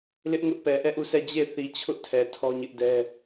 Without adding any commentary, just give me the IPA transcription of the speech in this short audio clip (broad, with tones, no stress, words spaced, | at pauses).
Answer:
lɪ˦ʔŋʊ˦ʔpɛ˨ ʔɛ˦˨ʔu˦˨sʰɛ˦˨ d͡ʑe˦˨θi˨ t͡ɕʰʊ˦ʔtʰɛ˨ tʰɔ˦ɲɪ˦ʔdɛ˦